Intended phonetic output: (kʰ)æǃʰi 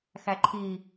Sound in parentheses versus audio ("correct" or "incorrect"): incorrect